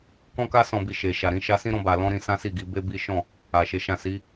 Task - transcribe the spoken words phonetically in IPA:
k ɔ̃˧ k a˧ s ɔ̃˨ b i˨ ʃ e˨ ʃ a˨ ɾ ĩ˨˦ ʃ a˧ s ĩ˦ ɾ ɔ̃˧ b a˨ l ɔ̃˧ ɾ ĩ˧ s ã˦ s i˦˨ ɡ i˨˦ b e˦ b i˦ ʃ ɔ̃˦˨ | a˨ ʃ e˨˦ ʃ ã˦˨ s i˨˦

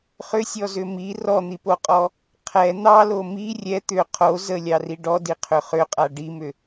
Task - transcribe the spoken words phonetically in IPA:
χ ʏ sʲ ɔ z ʏ m i r ɔ n̪ i p o qʼ ɔ | qʰ ɛ n̪ ɑ l o m i rʲ ɛ t̪ ʏ qʰ o z ə lʲ ɑ r i ɖ ɔ d i qʰ ʏ χ ʏ qʼ a ɖ i m ʏ

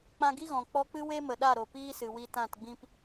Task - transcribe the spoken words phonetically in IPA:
k͡p ã˧ ɡ i˦ ɣ ɔ̃˨ k͡p ɔ˧ k͡p ɨ˦ w e˦ m ə˨ ɗ a˦˨ ɾ o˨ p iː˦ s ɨ˨ w i˧ t ã˦˨ t ɡ͡b ĩ˦ p

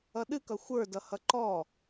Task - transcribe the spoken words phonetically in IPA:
ʌ ɗ ɨ k ʌ xʷ ə˞ d ʌ h ʌ ǃ ɔ

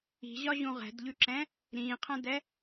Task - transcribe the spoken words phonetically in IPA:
i̤ ʑ ɒ ʑ ũ ʁ ɛ̤ d ʎ ʉ ǁ ɛ̃ | ɾ ĩː qʰ ɛ̃ d ɛ

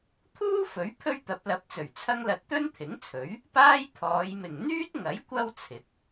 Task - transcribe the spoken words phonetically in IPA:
t̪ʰ uː˥ f ɵ˨˥ ɥ pʰ ɵ˥ ɥ t̪ ɐ˨˥ p̚ l ɐ˨˥ p̚ t͡s ɵ˨˩ ɥ t͡sʰ ɐ˥ ŋ l ɐ˧ t̚ t̪ ɵ˥ n t̪ʰ ɪ˨˥ ŋ t͡sʰ ɵ˨˥ ɥ | p aː˥ j t̪ʰ ɔː˨˧ j m ɪ˨ ŋ n̪ yː˥ t̚ ŋ ɐ˨˥ j kʷ ɐ˥ w t͡sʰ ɪ˨˥ k̚

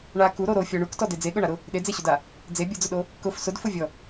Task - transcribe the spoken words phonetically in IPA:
ɳ a k u ɾ o ɾ o fʲ ɔ ɳ u k t ɔ d e d͡z e ɠ ʊ ɳ a ɾ ʊ | ɗ e d͡z e ɕ ʊ d a | d͡z e bʲ ʊ d͡z ʊ ɗ o | k ʊ f s ʊ d f ʊ vʲ ɔ

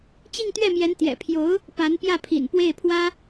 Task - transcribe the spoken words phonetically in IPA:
t͡ɕ i˥˧ ŋ t̪ ɥ ɛ˥˩ m j ɛ˧˥ n t̪ j ɛ̰˨˩ pʰ j o˧˥ ʊ̯ | p a˧˥ n p j ä˥˩ pʰ ḭ˨˩ n p w e˥˩ ɪ̯ pʰ w ä˥

